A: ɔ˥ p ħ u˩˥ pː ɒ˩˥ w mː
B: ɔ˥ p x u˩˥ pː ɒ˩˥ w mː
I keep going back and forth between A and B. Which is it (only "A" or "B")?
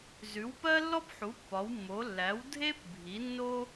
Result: A